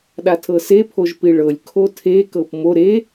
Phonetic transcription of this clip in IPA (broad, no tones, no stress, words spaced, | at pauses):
ɗatʰɤse pʰoʒpiɭɤlʲ kʰotʰe kɤpmo ɾe